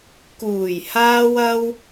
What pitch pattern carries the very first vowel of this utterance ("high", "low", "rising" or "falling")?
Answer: low